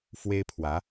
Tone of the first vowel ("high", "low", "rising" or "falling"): high